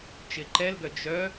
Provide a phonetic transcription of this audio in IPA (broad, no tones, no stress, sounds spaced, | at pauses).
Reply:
t͡ʃ ɪ ǃ ɛ l ɡ œ d͡ʒ œ